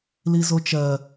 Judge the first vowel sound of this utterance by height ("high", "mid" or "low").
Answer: high